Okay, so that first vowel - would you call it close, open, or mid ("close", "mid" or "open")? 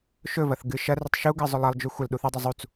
mid